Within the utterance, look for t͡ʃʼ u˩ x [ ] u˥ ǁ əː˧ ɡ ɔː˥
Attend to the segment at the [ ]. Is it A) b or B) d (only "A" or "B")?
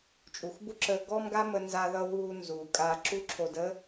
A